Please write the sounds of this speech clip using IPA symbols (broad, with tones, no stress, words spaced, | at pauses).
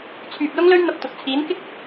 t͡sʰyː˨p̚lʊ˥ŋlɵ˥ɥn̪ɐ˧p̚ t̪ʊ˨k̚ t͡sʰiː˨˥nkɪ˥k̚